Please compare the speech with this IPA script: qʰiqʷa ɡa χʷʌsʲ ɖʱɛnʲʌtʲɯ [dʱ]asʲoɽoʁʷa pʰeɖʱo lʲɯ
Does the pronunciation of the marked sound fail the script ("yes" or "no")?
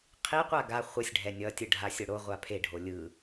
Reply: yes